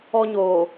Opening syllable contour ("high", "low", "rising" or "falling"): high